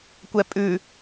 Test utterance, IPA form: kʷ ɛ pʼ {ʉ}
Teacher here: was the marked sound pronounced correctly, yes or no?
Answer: yes